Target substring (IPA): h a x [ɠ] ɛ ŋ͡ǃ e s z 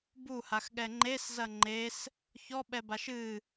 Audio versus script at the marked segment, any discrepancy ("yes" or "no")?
no